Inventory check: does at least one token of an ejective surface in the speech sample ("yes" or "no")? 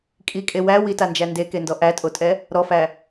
yes